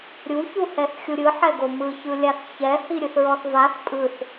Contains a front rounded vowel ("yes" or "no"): no